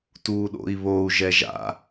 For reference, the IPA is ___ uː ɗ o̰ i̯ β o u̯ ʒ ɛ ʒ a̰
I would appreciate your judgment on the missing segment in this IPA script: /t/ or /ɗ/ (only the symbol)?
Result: t